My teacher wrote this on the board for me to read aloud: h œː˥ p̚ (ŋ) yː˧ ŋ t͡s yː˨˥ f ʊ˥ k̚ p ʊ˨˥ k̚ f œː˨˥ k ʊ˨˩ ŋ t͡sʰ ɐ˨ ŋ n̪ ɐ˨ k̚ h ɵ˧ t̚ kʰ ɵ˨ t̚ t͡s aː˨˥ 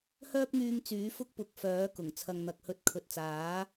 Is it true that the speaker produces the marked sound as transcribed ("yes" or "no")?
yes